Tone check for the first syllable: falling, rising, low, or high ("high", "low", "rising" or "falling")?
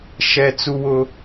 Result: high